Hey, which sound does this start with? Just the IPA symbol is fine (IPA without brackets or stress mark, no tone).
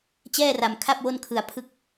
t͡ɕ